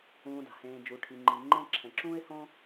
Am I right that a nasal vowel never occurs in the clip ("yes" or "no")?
no